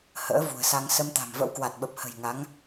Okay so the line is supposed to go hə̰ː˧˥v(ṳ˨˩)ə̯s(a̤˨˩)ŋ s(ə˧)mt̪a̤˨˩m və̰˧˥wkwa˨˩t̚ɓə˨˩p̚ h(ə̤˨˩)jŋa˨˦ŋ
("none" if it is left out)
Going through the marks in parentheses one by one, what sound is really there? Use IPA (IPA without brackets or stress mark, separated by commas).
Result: ṳ˨˩, a˧, ə˧, ə̤˨˩